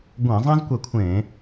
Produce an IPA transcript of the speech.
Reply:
ɡʷɛ̃˧˩˧zˤɛ̃˥zkʷɛ˧˩kʷʰẽː˧˩˧

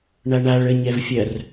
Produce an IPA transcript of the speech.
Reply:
ɳaɳaɭ ə ɲɛvfʲɐr

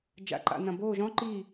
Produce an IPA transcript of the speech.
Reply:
d͡ʒa̰˨ǃa̰˨ nɐ̃˨boː˦˨ʒɔ̃˦ ǃi˦˨

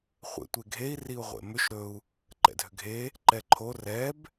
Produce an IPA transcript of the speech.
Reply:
χʷḛtʷeɡʱei̯ riu̯ʁʷḛmʏʃ ɾɵu̯ | ǃɛ̰dʱʏɡʱe | ǃɛǃʰo rɛb

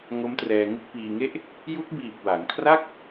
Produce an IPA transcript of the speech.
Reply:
ŋo˦˥mtrɛː˧ŋɯ˥˩k̚ piː˧ŋe˥˩ʔ | ju˦˥k̚biː˨˩p̚ wa˩˦ŋkʰra˥˩k̚

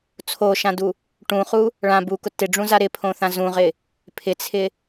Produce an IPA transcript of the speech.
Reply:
t͡sʰoʃãdu | ʈũχu | ɭã bukʊ tɪɖ͡ʐũza ɾɪpʰõθã zũʁɪ | pʰɪt͡sʰɪ

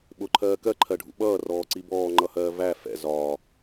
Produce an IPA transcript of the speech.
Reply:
ɓʊǃʰɜː kɜǃʰɜɖʱṵ ɓʌːrɔːǀi bɔːŋ͡ǃʌhɜː væ fɛ̰ zɒː

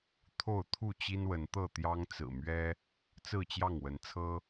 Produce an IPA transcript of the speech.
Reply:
t̪ʰo˥˨ʊ̯ t̪ʰu˥˨ t͡ɕi˦nwə˨˦nt̪ɤ˥˨ t̪jɑ˦ŋt͡sɹ̩˨˩mɥɛ˦ | t͡sɹ̩˥˨t͡ɕjɑ˥˨ŋwə˨˦nt͡sʰɤ˦

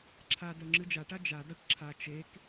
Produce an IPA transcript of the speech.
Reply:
ǁʰa dœŋ͡ǁɨd͡ʒaʈa d͡ʒadaʈ ǁʰa t͡ʃek

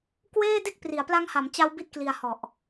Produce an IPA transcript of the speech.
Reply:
kweː˥˩de˥˩k̚ pri˩˦a̯pla˦˥ŋha˩˦mt͡ɕa˦˥w bi˥˩t̚kli˧a̯hɔ˨˩ʔ

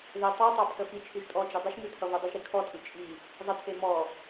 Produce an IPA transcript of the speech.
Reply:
ðe tˤʉtˤɑ pʰəfit͡ʃʰʉʒ tʼɔd͡ʒɘ dˤəʃmʉ tʰʌvodˤəʒɾi kʰɔtʼʉ t͡ʃʼi | zˤətʰe mɔ

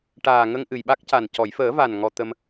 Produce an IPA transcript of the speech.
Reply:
ʈaː˨˩ ŋə˧ŋʔɨ˨˩jɓa˦˥k̚ca˨˩n cɔ˨˩˨jfəː˨˩˦va˨˩n ŋɔ˧t̪ə˧m

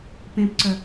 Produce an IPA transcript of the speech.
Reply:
pẽpǀœ

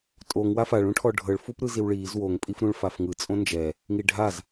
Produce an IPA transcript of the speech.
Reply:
tʼoŋ wafaɭ ũʈʰɔɖʱɤɭfup ɾɯziwɭiːz woŋpʼif ɾũɭfafŋɯ t͡sʼõnd͡ʒɛ | ŋiɖʱaz

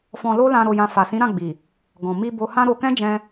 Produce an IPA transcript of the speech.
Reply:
fɔ̃˧lo˦lã˧ ɾo˧jã˧ fa˨sĩ˨˦ɾã˦˨ɡ͡bi˨ | ɡɔ̃˨mi˧ bo˧hã˦ɾo˧ kɛ̃˦d͡ʒɛ̃˧

